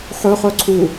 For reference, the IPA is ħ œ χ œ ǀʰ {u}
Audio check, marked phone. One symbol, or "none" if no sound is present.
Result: u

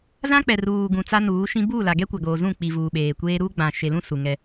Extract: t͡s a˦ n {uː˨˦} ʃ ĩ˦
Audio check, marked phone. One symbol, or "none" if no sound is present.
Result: uː˨˦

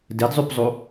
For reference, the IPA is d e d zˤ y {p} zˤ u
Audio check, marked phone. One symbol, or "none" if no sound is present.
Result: p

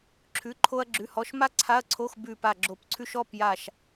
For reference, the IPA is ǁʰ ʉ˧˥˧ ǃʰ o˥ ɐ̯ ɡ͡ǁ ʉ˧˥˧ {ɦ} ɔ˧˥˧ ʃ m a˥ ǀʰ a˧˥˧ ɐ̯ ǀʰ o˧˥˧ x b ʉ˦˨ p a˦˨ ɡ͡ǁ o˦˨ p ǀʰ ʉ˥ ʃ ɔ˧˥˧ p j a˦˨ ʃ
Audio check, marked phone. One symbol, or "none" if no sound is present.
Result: h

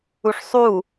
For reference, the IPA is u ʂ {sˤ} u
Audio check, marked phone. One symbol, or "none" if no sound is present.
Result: sˤ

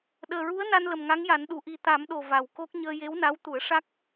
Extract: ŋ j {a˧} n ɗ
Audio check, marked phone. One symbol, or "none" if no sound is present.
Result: a˨˩˦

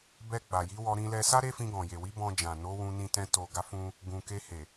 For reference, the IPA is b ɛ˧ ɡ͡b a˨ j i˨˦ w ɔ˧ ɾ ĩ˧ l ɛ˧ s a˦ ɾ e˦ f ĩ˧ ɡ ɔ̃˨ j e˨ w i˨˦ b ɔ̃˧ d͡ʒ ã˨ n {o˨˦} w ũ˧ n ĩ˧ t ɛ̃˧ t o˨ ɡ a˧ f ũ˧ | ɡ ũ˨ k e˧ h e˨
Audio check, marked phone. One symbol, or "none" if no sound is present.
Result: o˨˦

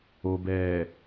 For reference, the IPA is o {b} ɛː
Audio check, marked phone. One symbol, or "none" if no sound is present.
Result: b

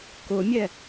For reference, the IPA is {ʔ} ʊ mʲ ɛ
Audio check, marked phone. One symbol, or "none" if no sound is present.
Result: k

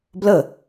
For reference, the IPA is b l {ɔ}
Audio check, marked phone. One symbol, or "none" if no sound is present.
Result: ə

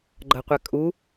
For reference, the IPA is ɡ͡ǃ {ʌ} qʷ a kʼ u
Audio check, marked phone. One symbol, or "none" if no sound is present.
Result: ʌ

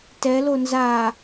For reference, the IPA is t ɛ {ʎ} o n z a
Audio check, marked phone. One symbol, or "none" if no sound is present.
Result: l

